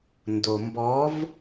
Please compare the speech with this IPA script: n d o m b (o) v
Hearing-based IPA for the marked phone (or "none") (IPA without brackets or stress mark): ɔ